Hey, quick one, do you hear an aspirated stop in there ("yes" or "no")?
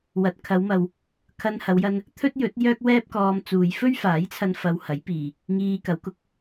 yes